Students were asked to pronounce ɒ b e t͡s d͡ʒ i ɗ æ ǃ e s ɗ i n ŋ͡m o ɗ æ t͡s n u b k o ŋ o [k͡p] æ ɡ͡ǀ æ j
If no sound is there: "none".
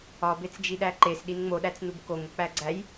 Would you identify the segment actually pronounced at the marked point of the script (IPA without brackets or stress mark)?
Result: k͡p